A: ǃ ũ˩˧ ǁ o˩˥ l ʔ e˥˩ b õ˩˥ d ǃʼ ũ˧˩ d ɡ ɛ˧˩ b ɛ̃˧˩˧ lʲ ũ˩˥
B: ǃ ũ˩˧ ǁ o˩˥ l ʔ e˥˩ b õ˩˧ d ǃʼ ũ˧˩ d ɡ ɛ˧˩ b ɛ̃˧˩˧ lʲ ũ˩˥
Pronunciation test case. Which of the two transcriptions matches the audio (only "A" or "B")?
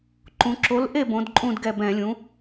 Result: B